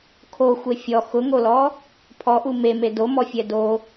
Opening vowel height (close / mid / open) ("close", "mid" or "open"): mid